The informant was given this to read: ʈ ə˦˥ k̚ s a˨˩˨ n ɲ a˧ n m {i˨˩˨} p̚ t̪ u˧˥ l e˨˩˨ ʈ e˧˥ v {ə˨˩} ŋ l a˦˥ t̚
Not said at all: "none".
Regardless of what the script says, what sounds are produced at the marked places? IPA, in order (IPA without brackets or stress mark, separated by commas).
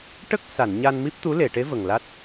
i˦˥, ə˨˩